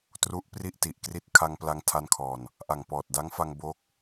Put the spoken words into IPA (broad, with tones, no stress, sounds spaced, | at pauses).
t r u˦˥ ʔ p r i˥˩ ʔ t i˨˩ ʔ k r i˦˥ t̚ kʰ a˧ ŋ p l a˧ ŋ tʰ a˧ n kʰ ɔː˨˩ n | ʔ a˨˩ ŋ p ɔː˨˩ t̚ d a˦˥ ŋ f a˧ ŋ b o˦˥ k̚